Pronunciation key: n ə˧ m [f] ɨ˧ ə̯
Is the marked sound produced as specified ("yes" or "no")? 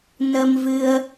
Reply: no